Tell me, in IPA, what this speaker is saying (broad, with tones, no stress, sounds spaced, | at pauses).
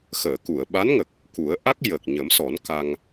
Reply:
x əː˨˩˨ k u˨˩˨ ə̯ ɓ a˧˥ n ŋ ə˨˩ k̚ | k u˨˩˦ ə̯ ʔ a˦˥ k̚ j ə˨˩ k̚ ɲ ə˨˩˦ m s ɔ˨˩˦ n k a˧ ŋ